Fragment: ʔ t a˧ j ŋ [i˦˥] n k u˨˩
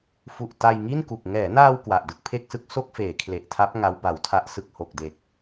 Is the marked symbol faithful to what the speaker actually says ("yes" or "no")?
no